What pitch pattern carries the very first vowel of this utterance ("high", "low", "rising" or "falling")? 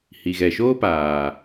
low